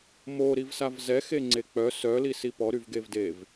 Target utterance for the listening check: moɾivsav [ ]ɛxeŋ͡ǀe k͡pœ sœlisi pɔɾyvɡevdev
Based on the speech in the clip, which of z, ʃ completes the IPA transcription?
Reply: z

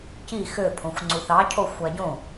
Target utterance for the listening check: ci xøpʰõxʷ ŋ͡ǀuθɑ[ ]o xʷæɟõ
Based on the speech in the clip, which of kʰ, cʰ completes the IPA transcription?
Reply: cʰ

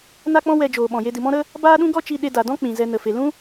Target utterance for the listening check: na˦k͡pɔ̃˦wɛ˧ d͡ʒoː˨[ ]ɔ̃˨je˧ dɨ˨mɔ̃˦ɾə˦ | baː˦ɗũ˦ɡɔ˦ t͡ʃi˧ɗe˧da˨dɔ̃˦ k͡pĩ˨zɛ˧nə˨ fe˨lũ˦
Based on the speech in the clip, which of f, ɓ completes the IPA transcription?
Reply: ɓ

